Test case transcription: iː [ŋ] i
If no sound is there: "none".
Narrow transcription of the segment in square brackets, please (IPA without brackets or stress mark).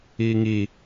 ŋ